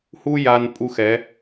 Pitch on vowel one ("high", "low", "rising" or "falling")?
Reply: high